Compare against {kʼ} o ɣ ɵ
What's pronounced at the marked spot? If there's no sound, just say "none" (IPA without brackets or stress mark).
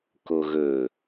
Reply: k